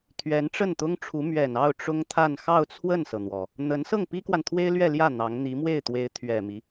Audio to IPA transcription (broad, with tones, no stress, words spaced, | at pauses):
t̪ʰɥɛ˧˥nʈ͡ʂə˥˩nt̪ʊ˥ŋʈ͡ʂʰu˧˥ mɥɛ˨˩nɑ˥˩ʊ̯ ʈ͡ʂʊ˥ŋt̪ʰa˥˧n xɑ˥˧ʊ̯t͡sʰwə˥˩nsɤ˩n̪wɔ˩ | n̪ə˧˥n sɤ˥˩ŋpi˥kwa˨nt̪ʰwe˥ɪ̯ lɥɛ˥˧ljä˥˩ n̪ɑ˧˥ŋ n̪i˧˥mwe˥˩ɪ̯t̪we˧˥ɪ̯ t̪ʰɥɛ˨˩mi˦